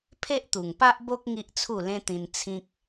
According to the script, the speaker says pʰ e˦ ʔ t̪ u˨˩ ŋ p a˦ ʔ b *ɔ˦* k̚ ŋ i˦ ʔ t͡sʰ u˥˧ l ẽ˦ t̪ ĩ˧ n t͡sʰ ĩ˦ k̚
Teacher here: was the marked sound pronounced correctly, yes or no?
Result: no